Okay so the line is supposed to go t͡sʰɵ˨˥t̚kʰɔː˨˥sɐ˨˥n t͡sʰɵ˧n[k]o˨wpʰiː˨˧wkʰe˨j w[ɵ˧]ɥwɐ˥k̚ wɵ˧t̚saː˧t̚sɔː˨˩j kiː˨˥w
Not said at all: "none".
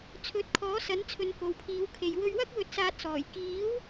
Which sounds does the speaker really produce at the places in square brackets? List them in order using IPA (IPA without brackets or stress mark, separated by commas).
k, ɵ˧